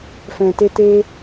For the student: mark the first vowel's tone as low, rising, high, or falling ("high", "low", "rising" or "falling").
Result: low